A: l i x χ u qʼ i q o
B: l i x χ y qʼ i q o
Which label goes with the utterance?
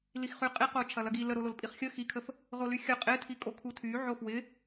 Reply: B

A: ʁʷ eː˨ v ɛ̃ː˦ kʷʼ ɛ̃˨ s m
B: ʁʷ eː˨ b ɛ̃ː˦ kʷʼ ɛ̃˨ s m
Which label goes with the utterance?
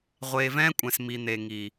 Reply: A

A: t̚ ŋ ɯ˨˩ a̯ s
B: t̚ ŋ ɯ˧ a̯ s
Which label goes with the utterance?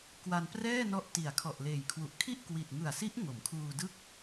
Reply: A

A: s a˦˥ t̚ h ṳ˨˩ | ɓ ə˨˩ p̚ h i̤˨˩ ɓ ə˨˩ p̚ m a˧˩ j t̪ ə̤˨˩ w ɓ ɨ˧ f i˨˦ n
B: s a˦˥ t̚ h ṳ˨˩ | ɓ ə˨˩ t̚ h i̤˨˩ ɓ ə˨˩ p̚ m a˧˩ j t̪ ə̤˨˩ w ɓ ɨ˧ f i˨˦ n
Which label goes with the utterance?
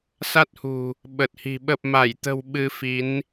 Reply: B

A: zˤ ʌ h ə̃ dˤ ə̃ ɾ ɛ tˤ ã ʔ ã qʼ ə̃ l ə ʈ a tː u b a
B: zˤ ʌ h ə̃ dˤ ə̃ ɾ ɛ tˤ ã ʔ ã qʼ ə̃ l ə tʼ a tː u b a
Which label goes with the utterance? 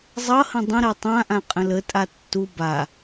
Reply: B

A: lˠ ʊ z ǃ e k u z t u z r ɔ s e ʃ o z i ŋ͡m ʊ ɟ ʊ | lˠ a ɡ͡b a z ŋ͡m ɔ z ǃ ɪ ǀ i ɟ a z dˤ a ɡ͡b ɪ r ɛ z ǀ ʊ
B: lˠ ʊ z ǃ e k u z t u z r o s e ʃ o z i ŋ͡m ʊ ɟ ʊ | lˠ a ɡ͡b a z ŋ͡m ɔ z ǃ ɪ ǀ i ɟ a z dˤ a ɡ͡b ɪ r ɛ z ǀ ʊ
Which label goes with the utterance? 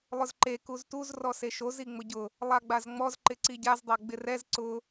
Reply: A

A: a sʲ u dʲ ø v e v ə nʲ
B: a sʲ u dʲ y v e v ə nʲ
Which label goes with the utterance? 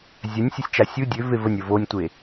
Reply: A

